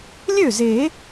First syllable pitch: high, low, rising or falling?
falling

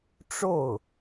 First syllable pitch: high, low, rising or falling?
falling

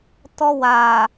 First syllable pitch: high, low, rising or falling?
high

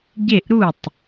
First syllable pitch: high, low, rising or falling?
falling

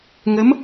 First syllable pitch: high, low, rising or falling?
rising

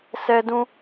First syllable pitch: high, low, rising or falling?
high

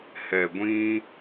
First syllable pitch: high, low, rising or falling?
low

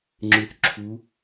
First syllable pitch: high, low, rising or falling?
low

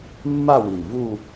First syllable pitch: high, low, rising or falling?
falling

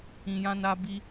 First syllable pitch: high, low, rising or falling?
low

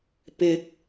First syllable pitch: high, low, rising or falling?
low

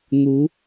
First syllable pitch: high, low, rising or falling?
rising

